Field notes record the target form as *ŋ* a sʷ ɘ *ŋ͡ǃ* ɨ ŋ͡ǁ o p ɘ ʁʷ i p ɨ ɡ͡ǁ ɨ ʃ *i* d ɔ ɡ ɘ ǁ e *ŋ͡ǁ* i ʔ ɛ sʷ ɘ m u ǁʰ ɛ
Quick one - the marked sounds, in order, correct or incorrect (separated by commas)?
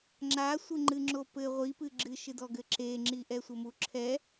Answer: incorrect, correct, incorrect, correct